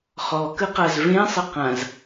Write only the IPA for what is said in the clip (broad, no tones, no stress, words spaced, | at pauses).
χɔkə qazvẽsˤɪ qãz